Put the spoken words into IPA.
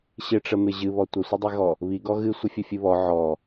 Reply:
ɕɪʈ͡ʂəmɪ ʑɨβɔ tʷəsʷədˤiɣɔ | βi ɡɔɣɨ sʷəfʲəfʲɨβɔ ʕɔ

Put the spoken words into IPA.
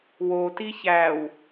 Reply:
woti çæːw

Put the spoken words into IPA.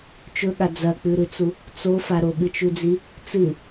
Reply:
t͡ʃɵɠa d͡zɐk͡pʉɾɨt͡su | t͡sofa ɾoɠɨt͡ʃʉd͡zi | t͡sɨ

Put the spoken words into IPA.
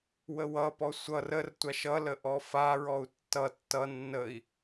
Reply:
wəwʌpɔ sʷʌr ərtʷaʃ ʌlə ʔɔfaɹɔu̯ tːʌ tːʌ nːəi̯

